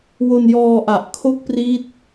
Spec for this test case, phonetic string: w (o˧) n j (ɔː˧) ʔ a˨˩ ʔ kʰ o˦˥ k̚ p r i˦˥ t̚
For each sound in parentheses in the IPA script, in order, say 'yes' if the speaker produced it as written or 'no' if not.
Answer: yes, yes

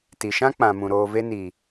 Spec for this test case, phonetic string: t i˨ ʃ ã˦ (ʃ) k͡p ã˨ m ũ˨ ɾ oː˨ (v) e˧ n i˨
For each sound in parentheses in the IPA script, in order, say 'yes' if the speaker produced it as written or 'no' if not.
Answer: no, yes

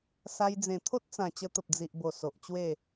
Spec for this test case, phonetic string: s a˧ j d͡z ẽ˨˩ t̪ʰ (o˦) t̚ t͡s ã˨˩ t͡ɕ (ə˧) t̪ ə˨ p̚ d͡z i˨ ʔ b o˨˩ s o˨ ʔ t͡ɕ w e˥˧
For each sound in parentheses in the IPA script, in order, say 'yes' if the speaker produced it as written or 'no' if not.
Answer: yes, yes

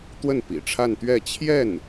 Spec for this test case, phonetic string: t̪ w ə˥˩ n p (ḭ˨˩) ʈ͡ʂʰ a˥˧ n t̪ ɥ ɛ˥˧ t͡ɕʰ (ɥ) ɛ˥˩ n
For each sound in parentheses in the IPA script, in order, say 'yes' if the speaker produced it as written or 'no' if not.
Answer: yes, no

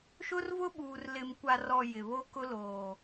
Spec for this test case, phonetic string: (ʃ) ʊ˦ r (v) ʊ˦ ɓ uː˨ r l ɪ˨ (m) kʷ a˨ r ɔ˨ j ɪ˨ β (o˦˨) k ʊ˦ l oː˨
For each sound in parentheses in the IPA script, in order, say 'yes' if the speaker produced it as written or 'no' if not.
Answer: yes, yes, yes, no

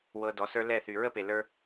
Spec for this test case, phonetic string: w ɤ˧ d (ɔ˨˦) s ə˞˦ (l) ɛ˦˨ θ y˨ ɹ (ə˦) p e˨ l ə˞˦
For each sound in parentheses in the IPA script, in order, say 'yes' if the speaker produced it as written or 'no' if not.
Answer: yes, yes, yes

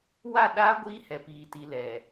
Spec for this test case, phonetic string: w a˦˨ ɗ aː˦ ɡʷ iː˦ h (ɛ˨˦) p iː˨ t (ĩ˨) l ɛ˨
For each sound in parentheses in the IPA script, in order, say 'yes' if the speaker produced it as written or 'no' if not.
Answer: no, no

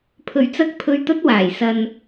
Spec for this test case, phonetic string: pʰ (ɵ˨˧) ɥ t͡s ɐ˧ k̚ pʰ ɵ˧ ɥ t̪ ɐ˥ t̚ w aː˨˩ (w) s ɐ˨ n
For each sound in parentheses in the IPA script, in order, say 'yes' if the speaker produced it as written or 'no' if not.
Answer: no, no

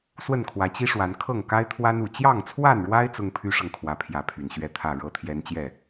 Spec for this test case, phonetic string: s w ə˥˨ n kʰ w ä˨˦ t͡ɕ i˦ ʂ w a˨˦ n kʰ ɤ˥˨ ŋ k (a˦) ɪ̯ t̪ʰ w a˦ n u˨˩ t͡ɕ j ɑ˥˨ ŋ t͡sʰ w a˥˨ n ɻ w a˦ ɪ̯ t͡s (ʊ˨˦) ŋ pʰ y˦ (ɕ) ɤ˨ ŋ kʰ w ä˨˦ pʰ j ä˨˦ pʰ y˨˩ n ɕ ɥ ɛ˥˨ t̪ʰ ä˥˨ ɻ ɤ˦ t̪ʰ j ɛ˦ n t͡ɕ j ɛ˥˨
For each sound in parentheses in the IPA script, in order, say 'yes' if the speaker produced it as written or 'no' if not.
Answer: yes, no, no

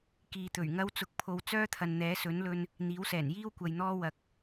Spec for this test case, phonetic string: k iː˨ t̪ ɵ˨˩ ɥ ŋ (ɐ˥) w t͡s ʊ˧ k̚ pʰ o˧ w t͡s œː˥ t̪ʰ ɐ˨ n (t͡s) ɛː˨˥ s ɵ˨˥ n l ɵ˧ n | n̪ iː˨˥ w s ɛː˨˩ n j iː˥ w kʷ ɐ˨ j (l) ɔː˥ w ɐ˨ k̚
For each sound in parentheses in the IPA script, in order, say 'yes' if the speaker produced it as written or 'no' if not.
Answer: yes, no, no

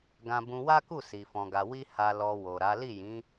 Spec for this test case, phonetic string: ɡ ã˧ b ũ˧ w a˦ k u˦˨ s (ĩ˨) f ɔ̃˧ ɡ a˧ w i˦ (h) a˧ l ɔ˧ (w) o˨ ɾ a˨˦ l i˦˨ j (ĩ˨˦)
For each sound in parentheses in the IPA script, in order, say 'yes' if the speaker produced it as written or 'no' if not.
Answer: no, yes, yes, yes

